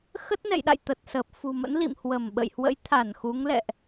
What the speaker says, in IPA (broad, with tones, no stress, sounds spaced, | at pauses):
x ə˦˥ t̚ n ɛ̰˧˨ j ɗ a̰˧˨ j t̪ ə˨˩ t̚ s əː˨˩ p̚ f ṳ˨˩ m ə̰˧˥ n l ḭ˧˨ m h w ə˧˩ m ɓ ə̰˧˨ j h w ə̰˧˥ j t̪ʰ a˧˩ n x u˨˦ ŋ l ɛ̰˧˨ ʔ